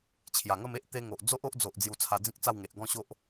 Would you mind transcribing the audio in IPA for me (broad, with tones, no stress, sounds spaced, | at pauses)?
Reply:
t͡ɕʰ j a˨˩ ŋ ə˥˧ m e˦ ʔ t̪ e˧ ŋ o˨ ʔ d͡z o˦ ʔ o˦ ʔ d͡z o˨ ʔ d͡z j u˧ t͡sʰ a˧ d͡z ĩ˦ k̚ t͡s a˥˧ w ŋ e˨ ʔ ɡ ɔ̃˥˧ ɕ o˦ ʔ